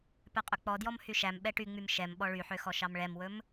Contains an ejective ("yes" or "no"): yes